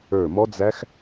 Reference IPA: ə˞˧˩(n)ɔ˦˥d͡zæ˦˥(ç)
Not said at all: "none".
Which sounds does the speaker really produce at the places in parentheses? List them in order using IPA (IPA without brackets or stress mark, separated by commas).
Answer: m, x